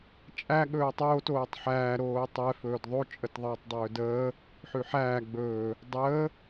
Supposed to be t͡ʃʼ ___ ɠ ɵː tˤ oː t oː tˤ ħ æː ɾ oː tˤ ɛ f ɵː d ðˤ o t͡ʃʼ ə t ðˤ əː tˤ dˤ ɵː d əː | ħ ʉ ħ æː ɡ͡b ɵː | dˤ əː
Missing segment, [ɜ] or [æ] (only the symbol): æ